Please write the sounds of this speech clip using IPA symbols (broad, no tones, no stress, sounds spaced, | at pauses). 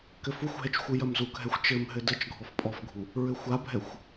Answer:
k ɘ f u xʷ ɦ ɛ t͡ʃ xʷ ɨ j ɐ m z u k ɦ ɛ xʷ t͡ʃ ɘ m ɦ ɘ d ɘ t͡ʃ ɡʱ ɔ f pʼ ɔ f ɡʱ u | ɹ ɘ xʷ a bʱ ɛ xʷ